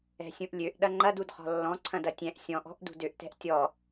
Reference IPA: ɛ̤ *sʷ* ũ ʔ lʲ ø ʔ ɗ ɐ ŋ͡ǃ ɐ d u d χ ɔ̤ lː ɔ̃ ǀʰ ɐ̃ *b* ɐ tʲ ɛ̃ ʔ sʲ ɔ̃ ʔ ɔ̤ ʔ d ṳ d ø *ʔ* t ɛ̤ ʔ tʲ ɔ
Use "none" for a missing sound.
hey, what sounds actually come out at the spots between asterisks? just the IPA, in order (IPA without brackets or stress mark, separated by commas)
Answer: sʲ, d, ʔ